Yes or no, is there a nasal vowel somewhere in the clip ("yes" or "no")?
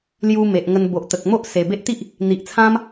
yes